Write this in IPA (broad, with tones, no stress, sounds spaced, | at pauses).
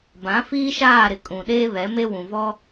b ã˨˦ f iː˦ ʃ aː˦˨ ɾ ɪ˨ kʼ ũ˨ ɗ eː˦ β ɛ˨˦ m e˦ w ũ˨ v ɔ˦